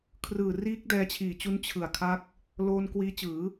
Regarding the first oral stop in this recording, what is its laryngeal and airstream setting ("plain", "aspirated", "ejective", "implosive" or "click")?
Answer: aspirated